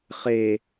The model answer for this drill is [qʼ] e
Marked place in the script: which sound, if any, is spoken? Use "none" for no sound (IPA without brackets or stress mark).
χ